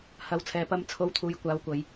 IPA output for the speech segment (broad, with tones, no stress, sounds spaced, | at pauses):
h ɐ˨˧ w t͡sʰ ɛː˨ p ɐ˧ m t͡sʰ o˧ w t̪ʰ uː˨˧ j kʷ aː˨˥ w kʷ ɐ˨˧ j